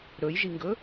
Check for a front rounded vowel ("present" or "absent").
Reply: absent